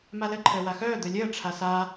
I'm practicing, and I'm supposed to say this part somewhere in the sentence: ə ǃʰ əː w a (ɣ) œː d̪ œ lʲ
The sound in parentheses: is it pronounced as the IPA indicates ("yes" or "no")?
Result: no